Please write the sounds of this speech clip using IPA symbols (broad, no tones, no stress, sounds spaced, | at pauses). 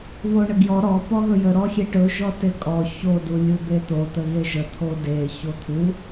β o ɳ ə ɡ j ɔ ɾ ɔ p ɔ ɣ ɵ j ə ɾ ɔ xʲ e ʈ ɵ ʒ ɔ t e kʼ ɔ ç o d u lʲ u d̪ e t̪ o t̪ ə ɣ e ʒ ə t̪ʰ o d e ç o t̪ʰ u